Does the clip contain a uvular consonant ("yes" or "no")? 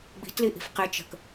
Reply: yes